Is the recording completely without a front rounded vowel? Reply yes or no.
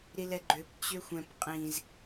no